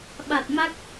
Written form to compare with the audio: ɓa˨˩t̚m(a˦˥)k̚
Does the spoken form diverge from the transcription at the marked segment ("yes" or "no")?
no